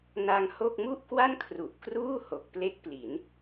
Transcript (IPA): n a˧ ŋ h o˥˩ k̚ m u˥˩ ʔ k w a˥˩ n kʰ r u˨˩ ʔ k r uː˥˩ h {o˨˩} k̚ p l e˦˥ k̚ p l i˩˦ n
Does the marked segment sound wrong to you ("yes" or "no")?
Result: no